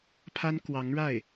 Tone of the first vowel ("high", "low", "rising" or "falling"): high